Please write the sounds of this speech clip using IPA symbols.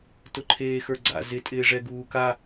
t ʊ ǃʰ eː x ə˞ ɡ͡ǀ a̰ z ɪ tʼ ɪː ʐ ɛ ɡ uː k a

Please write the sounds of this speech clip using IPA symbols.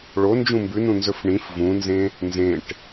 ɭ o n d͡ʒ ũ m b ʉ n ũ n z ɵ f ɳ ĩ f v ũ n z ẽ | n z ẽ ʈ

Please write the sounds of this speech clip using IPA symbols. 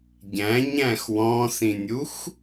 ɟ æ̃ ɲ æ̃ x w ɔ̃ s ĩ nʲ u x

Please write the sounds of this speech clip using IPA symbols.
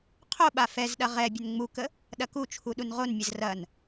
qʰ o ɓ a f ɛ z ɗ ɐ ʁ ɛ bʲ ə n ŋ͡m u k ə | ɗ ɐ k u t͡ʃʰ u ɗ u n ʁ o n mʲ ə z r ɐ n

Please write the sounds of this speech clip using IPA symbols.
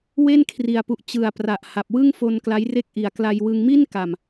w e˥˩ n kʰ r i˨˩ a̯ p u˨˩ ʔ t͡ɕ ɯ˨˩ a̯ p r a˨˩ ʔ h a˨˩ p̚ w ɯ˥˩ ŋ f o˧ n k l a˦˥ j r e˥˩ k̚ ʔ i˨˩ a̯ k l a˧ j w ɯ˧ ŋ m i˥˩ n k a˨˩ m

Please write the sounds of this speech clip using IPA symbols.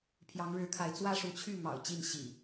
pʰ j ɑ˨˦ ŋ ɻ ɻ̩˨˦ kʰ a˨˦ ɪ̯ t͡s w ä˦ ʂ u˨˦ t͡ɕʰ y˥˨ m ɑ̰˨˩ ʊ̯ t͡ɕ i˥˨ n ɕ ḭ˨˩

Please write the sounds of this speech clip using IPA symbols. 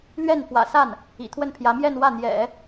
l ɥ ɛ˥˩ n f w ä̰˨˩ s a˥˩ n | ḭ˨˩ t̪ʰ w ə˥˩ n pʰ j ä˧˥ m j ɛ˥˧ n w ä˥˩ n̪ j ɛ̰˨˩˦

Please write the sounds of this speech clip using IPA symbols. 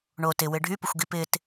ɳ o t ɪ w ɪ ɖʱ y p ə xʷ ɡ i p ɪ t

